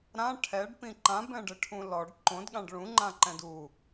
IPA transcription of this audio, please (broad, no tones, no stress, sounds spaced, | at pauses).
ɾ ã ʈʰ ɛ ɖ p ĩ ǃ ã b ɛ̃ ɖ ɘ ʈʰ ũ l ɔ ɖ ǃ õ d ɠ ã ɖ ɭ ũ ŋ͡ǃ ã ǃ ɛ̃ d u